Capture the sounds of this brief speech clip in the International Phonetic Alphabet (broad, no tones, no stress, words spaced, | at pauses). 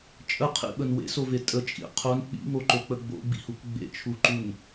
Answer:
t͡ʃʼəqʰḭɓən wḛsove tʼət͡ʃʼḭ qʰon k͡pḭŋoǃok͡pə ɡ͡bo̰ɡ͡bḭhuk ɡ͡bḛt͡ʃʰuǃun